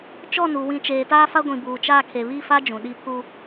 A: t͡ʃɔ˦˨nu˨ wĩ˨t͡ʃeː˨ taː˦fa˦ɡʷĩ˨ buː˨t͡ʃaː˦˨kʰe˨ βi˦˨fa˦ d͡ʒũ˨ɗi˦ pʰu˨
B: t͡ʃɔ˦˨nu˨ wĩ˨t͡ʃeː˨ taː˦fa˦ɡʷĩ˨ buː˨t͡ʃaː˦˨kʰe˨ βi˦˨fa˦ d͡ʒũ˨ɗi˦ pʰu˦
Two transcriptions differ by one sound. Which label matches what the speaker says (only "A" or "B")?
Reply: B